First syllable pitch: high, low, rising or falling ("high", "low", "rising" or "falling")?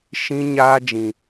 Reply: high